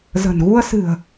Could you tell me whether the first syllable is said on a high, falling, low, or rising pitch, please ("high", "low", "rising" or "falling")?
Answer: low